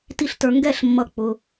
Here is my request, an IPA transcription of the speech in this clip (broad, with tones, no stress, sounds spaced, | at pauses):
t i˥˨ ɬ t ə˞˧ ŋ ɡ ɛ˥˨ ɬ mː ʌ˥ k͡p ʊ˧